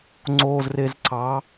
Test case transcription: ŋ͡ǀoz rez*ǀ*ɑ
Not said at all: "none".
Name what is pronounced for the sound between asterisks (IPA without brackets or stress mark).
ǀ